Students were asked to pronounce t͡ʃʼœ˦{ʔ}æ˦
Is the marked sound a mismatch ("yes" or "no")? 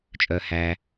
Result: yes